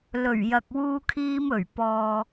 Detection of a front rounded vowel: absent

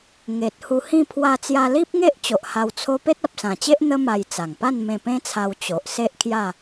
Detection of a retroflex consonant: absent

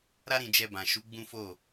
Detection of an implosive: absent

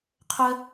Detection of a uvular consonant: present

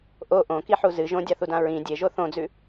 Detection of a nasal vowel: present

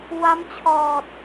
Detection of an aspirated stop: present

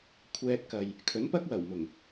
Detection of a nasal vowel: absent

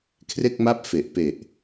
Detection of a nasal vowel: absent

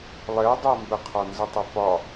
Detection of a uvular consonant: present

